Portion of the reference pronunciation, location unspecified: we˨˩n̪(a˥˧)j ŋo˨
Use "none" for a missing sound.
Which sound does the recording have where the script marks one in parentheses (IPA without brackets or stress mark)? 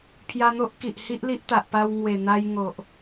a˧